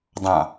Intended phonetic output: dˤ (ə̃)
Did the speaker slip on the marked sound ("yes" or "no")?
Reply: yes